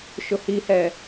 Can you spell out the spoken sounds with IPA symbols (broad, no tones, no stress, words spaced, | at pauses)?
ʃʊhihɛ